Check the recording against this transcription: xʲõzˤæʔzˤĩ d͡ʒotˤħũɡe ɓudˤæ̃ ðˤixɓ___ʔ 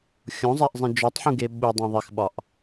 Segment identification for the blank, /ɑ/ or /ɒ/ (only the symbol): ɒ